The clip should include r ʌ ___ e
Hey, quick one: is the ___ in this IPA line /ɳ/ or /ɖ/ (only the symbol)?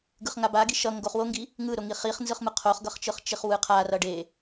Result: ɖ